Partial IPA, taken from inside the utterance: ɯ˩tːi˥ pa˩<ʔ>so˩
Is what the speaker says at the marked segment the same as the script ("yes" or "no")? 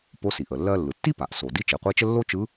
yes